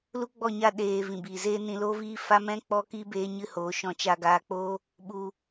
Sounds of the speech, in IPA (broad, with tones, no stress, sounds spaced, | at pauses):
l u˦ ɡ͡b ɔ˦˨ ɲ a˦˨ ɗ eː˧ v ĩ˨ b iː˨ z eː˦ n ĩ˧ l oː˦ v iː˦ f a˦ m ɛ̃˦ k͡p ɔ˦ k iː˦ b eː˦ ɲ ɨ˦ h oː˨˦ ʃ ɔ̃˧ t͡ʃ a˧ ɡ aː˧ k͡p oː˦ | ɓ u˧